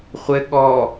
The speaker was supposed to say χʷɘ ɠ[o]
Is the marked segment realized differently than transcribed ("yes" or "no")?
yes